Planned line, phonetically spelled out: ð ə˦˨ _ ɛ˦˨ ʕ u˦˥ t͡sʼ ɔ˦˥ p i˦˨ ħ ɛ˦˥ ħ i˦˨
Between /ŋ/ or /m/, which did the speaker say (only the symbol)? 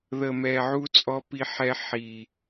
m